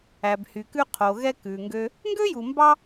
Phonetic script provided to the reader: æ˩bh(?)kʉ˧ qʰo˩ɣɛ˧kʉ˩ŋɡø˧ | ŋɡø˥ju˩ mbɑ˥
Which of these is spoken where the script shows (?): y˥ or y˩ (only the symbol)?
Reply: y˩